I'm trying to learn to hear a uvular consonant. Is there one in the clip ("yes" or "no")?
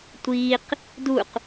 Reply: yes